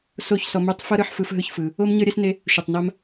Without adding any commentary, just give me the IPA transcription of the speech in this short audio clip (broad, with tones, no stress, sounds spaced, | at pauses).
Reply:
s o˦˨ ç s ɔ˧ m e˦ tˤ f ɤ˦ ɾ ɯ˧ ħ f ɯ˧ f ɦ ɯ˦ ç f ɯ˧ | o˦ m ɲ ɤ˦ ɾʲ ɛ˦ s n e˦ | ʃ u˨ tˤ n a˦ m